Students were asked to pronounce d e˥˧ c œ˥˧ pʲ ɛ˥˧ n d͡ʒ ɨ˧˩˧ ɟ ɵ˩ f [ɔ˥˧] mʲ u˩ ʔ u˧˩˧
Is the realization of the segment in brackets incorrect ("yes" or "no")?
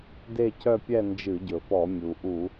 yes